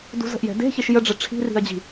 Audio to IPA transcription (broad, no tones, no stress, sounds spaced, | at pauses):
d ṳ z ə̤ ʔ j ɛ̤ d e̤ ç e ʃ j ə ɖ͡ʐ ɘ ʈ͡ʂʰ i̤ r i̤ ɐ̯ d͡ʑ i̤